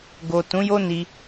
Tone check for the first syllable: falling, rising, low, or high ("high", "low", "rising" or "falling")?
low